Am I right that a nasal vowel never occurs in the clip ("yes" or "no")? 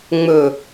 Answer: yes